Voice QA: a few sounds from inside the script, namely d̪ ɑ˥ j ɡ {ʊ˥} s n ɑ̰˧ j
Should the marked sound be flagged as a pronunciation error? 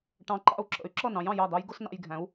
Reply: no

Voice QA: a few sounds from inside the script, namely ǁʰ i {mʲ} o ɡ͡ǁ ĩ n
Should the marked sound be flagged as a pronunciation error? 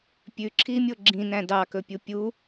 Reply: no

